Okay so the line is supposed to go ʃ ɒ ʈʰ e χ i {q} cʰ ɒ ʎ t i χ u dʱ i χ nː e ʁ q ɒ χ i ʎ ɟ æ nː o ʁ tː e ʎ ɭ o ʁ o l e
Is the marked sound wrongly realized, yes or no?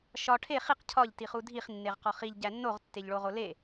no